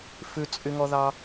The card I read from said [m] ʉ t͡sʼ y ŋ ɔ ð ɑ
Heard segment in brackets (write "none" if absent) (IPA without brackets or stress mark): f